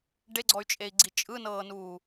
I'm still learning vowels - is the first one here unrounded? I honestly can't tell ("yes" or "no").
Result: yes